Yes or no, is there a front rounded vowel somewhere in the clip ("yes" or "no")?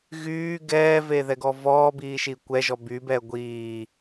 yes